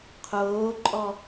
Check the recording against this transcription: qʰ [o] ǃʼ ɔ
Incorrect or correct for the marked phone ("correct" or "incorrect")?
incorrect